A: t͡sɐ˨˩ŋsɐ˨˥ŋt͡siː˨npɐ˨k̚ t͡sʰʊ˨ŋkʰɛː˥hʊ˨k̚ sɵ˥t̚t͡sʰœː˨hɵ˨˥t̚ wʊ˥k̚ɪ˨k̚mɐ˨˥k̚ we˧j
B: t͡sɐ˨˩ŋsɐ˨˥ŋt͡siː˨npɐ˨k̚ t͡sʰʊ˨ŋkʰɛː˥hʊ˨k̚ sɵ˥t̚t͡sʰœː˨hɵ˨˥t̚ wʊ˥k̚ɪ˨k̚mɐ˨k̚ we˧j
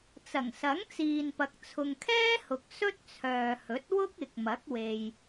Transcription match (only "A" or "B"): A